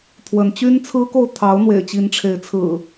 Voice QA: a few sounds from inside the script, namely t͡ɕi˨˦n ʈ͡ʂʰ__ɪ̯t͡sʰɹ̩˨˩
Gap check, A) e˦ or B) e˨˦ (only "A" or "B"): B